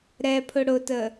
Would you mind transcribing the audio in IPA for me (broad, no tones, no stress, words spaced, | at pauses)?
ɾɛpʰʊ ɽʊtə